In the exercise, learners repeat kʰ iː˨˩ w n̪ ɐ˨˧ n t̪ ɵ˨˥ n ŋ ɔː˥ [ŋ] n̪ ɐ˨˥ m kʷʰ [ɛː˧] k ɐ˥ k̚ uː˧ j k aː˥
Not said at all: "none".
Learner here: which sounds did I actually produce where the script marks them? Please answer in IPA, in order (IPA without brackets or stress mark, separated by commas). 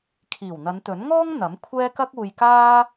ŋ, ɛː˥